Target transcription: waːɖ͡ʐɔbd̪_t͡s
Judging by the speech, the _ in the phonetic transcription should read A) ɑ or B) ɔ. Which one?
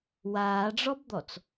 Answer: B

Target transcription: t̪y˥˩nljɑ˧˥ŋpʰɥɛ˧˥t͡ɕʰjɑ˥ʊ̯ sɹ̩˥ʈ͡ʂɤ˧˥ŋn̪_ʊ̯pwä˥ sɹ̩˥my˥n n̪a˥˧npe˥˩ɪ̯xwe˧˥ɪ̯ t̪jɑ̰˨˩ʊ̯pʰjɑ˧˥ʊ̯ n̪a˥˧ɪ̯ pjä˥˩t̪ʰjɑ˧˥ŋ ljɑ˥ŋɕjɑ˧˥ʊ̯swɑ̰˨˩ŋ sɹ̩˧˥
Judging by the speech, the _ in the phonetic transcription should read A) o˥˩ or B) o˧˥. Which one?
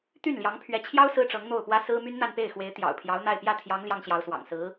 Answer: A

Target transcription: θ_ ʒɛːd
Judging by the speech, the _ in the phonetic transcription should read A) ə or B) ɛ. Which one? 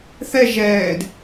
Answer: B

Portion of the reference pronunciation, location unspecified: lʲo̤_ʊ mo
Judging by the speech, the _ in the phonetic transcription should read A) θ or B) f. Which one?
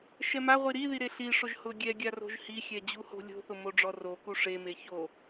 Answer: A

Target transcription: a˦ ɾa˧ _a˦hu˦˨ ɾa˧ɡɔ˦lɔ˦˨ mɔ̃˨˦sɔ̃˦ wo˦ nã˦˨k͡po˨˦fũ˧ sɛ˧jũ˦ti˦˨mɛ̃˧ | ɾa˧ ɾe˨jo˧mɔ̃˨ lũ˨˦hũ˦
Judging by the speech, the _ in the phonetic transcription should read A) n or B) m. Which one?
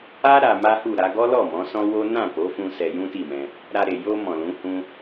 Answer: B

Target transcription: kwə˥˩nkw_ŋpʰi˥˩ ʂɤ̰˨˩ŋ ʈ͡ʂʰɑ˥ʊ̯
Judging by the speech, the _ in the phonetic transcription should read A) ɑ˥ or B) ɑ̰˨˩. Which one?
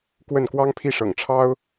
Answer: A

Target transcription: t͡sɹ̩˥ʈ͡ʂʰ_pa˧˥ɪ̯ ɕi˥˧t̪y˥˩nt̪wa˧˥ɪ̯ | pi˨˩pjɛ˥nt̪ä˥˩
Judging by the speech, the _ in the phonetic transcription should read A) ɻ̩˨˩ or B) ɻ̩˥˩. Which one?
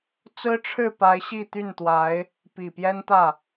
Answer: B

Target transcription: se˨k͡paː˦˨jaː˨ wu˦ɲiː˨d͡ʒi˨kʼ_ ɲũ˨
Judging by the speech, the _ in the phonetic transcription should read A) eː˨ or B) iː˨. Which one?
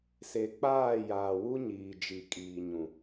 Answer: B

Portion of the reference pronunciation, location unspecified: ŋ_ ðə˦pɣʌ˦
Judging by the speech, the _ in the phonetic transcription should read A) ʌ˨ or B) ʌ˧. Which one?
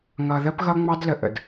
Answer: B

